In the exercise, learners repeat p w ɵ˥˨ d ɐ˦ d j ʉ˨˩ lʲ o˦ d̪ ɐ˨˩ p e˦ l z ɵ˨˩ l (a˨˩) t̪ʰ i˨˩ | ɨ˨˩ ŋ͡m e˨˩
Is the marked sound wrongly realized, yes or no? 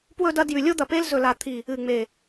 no